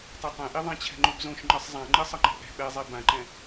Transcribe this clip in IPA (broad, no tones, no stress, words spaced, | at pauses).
tˤɯtˤɛ̃ʔi ðˤãt͡ɕʰɛ̤ŋ͡ǃubzõʃ ŋ͡ǃɯsˤzˤãŋ͡ǃɯ sˤʌŋ͡ǃɛ̤ʔɛ̤ ɓɛzˤe bãǃɛ̃